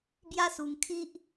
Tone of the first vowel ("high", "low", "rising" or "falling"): high